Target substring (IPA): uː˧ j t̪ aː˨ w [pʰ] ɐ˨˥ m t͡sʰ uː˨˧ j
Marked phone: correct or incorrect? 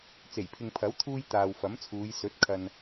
incorrect